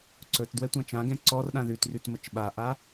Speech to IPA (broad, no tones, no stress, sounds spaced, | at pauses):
ǀ ɵ t d w ɛ tʷ ã t͡ʃ ã ɡ ɛ̃ ǀ ɔ r ɗ ã ð ʉ t r ʉ t m ə t͡ʃ ɓ a ʔ a